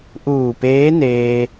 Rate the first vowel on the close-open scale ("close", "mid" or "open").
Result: close